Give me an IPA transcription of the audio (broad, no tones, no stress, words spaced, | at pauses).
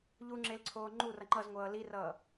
ʎuŋ͡ǁel ǀʰoːŋ͡ǃurʌ ŋ͡ǃʌzŋʷʌː lirʌː